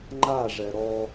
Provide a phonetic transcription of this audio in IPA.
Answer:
ŋ͡ǃaʐɛ ɾɔ

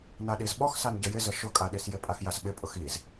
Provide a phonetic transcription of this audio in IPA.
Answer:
naɗizɓɔx sanɟəjɪzə ʃʊkʼaɗisjɪ pʼaxjasɓɪ pʼʊxiz

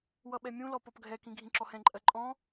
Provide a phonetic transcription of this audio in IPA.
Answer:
wʌɓɛmʲũlɔ pɔpɡʱɛkĩ ɡʱĩǁɔhɛ̃ǃʼɜ ǃʼɔ̃

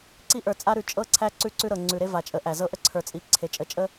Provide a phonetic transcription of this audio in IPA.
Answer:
ǀi˦ʔə˞˨t͡sʼa˦ ɾʉ˨t͡ʃʼɤ˦ ǀʰæ˦ǀʉ˦ǀʉ˦ɾɤ˨ ŋ͡ǀʉ˨ɾe˦ va˨t͡ʃʼə˨˦ʔæ˨ zɤ˦ʔə˦ ǀʰə˞˨t͡sʼi˨ ǀʰe˨ t͡ʃʼə˨t͡ʃʼə˦

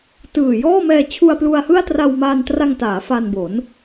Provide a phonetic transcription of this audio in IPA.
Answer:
tɯː˨˩jɔː˥˩ mɛː˧t͡ɕʰu˧a̯plu˧a̯hɯ˥˩a̯ tra˧wmaː˧ntra˧ŋ taː˩˦fa˧n bo˩˦n

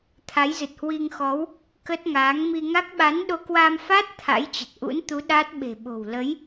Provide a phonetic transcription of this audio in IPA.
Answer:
t̪ʰa˨˦jzɨ˨˩t̚hwi˧ŋxɔ˨˦w | kə˦˥t̚ŋaː˨˦ŋ mi˧ŋa˦˥k̚ ɓa˨˦nɗo˧kwa˧mfa˦˥t̚ t̪ʰa̰˧˥jt͡ɕə˨˩t̚ʔṵ˧˥nt̪u˨˦ ɗa˦˥t̚ ɓe̤˨˩ɓo̤˨˩w lə˨˦j

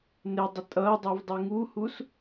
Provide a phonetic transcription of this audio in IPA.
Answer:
nɪdˤɪ tʼʌːdˤiv dˤiŋuhus

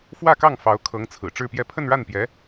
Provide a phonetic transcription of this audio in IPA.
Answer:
fwä˥˧kɑ˥˩ŋ fɑ˧˥ʊ̯kʰɤ˧˥ŋt͡sʰɹ̩˨˩ ʈ͡ʂɻ̩˥˧pjɛ˥˧ pʰə˥˧nɻa˥˩npjɛ˧˥

